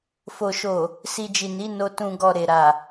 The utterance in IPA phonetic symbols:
fo˨ʃo˨ | si˨d͡ʒi˨ ni˨˦no˧ tũ˨ɡɔ˨ ɾe˨ɾa˨

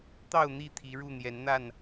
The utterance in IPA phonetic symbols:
t̪ɑ˥˨ʊ̯n̪i˥˨ t̪ʰi˨˦ɻu˥˨ n̪jɛ˨˦nn̪a˥˨n

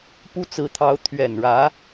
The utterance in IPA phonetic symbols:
pu˥t͡sɹ̩˧˥t̪ʰɑ˧˥ʊ̯ t̪ʰɥɛ˨˩nɻä˧˥

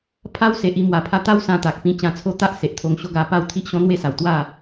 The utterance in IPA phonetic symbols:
pʰa˦wse˨ʔ i˧mwa˨˩ pʰa˧t̪a˦w sã˧t̪a˨k̚pĩ˧ t͡ɕã˧t͡sʰo˦t̪a˦ʔ se˨ʔt̪ʰo˧ŋɕo˦ɡa˧ pa˥˧wt̪ʰi˦ʔɕɔ̃˦n̪we˦ sa˨˩wt̪wa˥˧

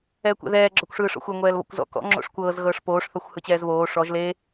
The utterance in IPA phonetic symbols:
ɛːkʷɛ̰ðɛː ɡ͡ǁɔkʷʂɯːʂɔ̰xʷe ŋʷɛːlβɔ̰kʷzɔ̰ kɔ̰ ŋ͡ǁo̰ʂkʷɤːz ɣɤːʂpoːʂ θɔxʷhɯt͡ɕɛːzβoː ʂɔʒ le

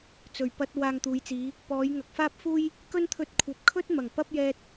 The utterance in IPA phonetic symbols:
t͡sɵ˨˩ɥ pɐ˧t̚ waː˧ŋt̪uː˨˧jt͡siː˨˧ | pɔː˨˧jŋɐ˨k̚faː˥p̚fuː˥j | kɵ˥nt̪ʰɵ˧t̚kʷʰɐ˨˥p̚ kʰɵ˥t̚mɐ˨˩ŋ pɐ˥p̚jɛː˧t̚

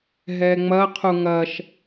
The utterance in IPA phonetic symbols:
ɦɛŋ͡mɐ qʰuŋɐʃ

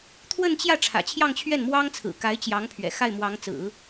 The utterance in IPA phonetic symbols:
t̪ʰwə˥˧nt͡ɕjä˥˩ ʈ͡ʂʰä̰˨˩t͡ɕʰjɑ˥˧ŋt͡ɕʰɥɛ˥˩nmwɑ˥ŋ t͡sʰɹ̩˨˩ka˧˥ɪ̯t͡ɕjɑ˧˥ŋpʰɥɛ̰˨˩ xa˥˩ɪ̯mwɑ˧˥ŋt͡sɹ̩˨˩˦

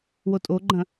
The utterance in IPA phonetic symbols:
wotʼoɡ͡ǃɐ̃

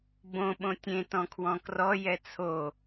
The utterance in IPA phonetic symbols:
bõ ɓõtʲẽ tɔ̃kʰwɔ̃krɔ jɛt͡sʰo

